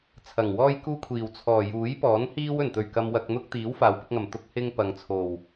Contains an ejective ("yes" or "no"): no